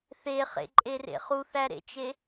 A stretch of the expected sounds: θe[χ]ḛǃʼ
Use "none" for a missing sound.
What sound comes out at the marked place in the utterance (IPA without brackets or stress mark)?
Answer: χ